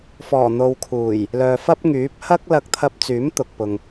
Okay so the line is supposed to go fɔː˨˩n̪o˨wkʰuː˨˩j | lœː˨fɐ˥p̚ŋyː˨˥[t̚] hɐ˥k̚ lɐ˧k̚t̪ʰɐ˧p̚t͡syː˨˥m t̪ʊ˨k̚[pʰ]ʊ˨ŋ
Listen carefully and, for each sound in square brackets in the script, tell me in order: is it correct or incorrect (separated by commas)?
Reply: incorrect, incorrect